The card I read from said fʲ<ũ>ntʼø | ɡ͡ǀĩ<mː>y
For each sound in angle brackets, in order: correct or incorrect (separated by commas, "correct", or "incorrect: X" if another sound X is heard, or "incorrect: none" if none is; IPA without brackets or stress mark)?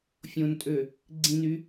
incorrect: õ, incorrect: n